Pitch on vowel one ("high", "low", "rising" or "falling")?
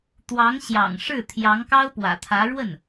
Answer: rising